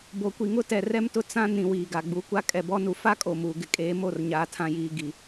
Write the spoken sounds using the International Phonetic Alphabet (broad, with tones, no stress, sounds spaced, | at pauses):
b o˨ kʷ i˨ ŋ ʊ˦ t ɛ˨ r ɛ˦ m t ʊ˦ t͡s ã˦ n ĩ˨ w iː˨ ɡ a˨ ɡ͡b u˨˦ kʷ a˦ kʼ ɛ˨ b ɔ˦ n u˨ f a˦ kʼ o˨ m uː˨ ɡ ɪ˦ kʼ eː˨˦ m o˦˨ r ɲ aː˦ tʰ ã˦ j iː˦ ɡ i˨